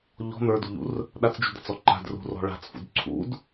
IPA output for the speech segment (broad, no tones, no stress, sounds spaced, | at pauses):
ʎ ɔ̤ n̪ ə˞ d ṳ ʎ ṵ r | ɗ a t͡s d͡ʒ ṳ d̪ a̤ t͡s ɔ ǃ a̤ d r ṳ r ɔ̤ ɭ a̤ t͡s f ṵ d ǀʰ ṵ d